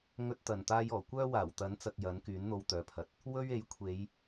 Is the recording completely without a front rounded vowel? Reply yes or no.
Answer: no